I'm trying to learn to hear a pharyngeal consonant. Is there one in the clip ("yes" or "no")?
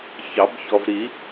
no